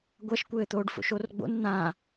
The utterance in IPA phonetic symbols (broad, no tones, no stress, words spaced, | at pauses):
ɡʷɐʃkʷɘːt̪oːɖ fo̰ʃorɡ͡bo̰n n̪ã